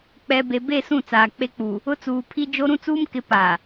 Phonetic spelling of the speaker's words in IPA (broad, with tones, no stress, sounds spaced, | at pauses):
k͡p ɛ˨ b e˨ b e˦˨ s ũ˦˨ t͡s aː˨ k͡p e˦ k͡p u˨ | ʊ˦ t͡s uː˨ pʰ i˦ d͡ʒ o˦ ɾ ũ˦ t͡s uː˦ m k ɪ˨˦ p a˨